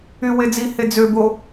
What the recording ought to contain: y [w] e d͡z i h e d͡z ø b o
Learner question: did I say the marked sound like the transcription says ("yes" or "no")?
yes